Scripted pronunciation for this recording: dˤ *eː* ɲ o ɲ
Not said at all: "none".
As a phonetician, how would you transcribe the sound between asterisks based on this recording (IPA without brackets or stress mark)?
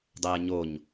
eː